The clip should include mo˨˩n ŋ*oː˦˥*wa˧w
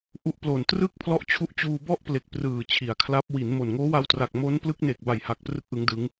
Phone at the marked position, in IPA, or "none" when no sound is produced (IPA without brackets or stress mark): oː˦˥